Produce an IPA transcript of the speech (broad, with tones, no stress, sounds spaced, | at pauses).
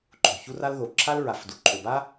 ǃ o̤˨ ç u˦ r a˦ l ð o˨ ǁʰ a˦ l ɹ a˨ f d u˨ ǃʰ o˨ b a˦